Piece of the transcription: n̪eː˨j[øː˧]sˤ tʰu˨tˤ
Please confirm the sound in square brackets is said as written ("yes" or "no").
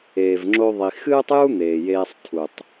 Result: no